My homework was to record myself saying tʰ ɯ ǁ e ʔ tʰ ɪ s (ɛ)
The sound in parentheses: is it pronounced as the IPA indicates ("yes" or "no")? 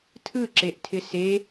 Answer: no